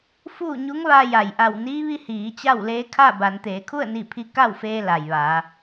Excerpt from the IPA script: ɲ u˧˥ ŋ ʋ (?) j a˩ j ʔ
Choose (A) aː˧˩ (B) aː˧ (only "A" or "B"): B